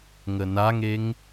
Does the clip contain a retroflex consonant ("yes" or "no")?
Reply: no